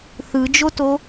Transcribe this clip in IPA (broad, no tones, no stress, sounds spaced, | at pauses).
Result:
θ ɯ d͡ʒ o t o